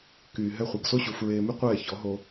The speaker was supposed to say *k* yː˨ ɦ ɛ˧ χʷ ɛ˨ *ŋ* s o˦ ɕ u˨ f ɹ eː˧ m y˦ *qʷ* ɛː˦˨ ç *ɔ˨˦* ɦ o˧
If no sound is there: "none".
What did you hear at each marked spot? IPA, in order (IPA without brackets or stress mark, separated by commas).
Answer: k, ɡ, qʷ, ɔ˨˦